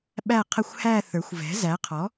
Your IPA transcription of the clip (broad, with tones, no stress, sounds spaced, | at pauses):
ɓ æ˦˨ qʰ ə˦˨ xʷ h æ˦˨ θ ə˞˩˥ xʷ v ɛ̤˩˥ z æ˩˥ qʰ ɔ˩˥